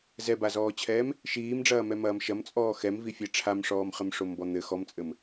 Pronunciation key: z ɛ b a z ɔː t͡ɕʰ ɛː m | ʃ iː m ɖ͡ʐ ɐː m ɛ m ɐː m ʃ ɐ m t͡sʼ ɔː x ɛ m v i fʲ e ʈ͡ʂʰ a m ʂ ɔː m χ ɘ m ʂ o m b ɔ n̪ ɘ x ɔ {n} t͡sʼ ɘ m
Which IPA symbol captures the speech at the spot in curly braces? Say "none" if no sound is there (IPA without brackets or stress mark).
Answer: m